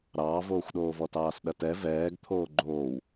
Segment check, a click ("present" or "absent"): present